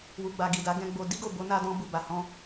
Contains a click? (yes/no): no